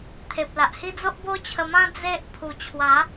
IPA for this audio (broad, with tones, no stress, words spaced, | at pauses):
t̪ʰe˨p̚la˨ʔhi˦ d͡zo˦ʔbo˦t͡ɕʰə˧mã˦ d͡ze˦ʔ pʰu˨˩t͡ɕʰwa˨˦